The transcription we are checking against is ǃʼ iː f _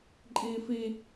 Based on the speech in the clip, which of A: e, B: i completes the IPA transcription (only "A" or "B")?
B